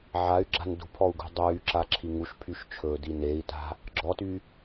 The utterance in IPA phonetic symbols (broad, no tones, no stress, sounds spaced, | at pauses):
ʕ a y̯ ɡ͡ǁ a̤ n d ṳ pʰ ɔ u̯ ɡ ṳ dˤ yː ǁ a ǁʰ i ŋ u ʃ pʰ y ʃ t͡ʃʰ ɵː d i n e i̯ t a̤ | ɡ͡ǁ ɔ t y